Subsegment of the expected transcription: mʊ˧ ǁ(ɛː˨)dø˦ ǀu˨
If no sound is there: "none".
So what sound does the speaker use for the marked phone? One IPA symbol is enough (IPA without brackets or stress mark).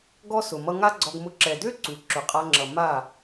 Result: ɛ˨